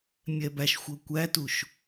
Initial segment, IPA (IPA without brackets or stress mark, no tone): mʲ